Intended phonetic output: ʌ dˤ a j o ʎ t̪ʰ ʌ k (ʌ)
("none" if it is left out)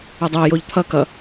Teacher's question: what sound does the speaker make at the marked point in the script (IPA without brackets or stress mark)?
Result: ʌ